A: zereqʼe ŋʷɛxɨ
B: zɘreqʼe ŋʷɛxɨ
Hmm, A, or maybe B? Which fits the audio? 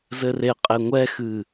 B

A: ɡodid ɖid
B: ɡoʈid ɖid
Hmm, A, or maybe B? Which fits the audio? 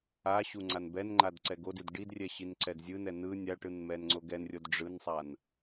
A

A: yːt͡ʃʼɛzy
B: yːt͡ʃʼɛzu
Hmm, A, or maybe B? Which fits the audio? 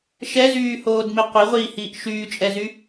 A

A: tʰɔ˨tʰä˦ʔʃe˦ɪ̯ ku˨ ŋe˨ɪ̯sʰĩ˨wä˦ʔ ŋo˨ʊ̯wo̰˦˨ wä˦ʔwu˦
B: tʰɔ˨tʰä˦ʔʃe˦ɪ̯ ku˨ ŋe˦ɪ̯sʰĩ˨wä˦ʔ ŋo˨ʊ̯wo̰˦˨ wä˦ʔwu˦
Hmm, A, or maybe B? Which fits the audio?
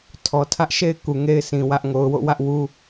B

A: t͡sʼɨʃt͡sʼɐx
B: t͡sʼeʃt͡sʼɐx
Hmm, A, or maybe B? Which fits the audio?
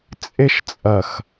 B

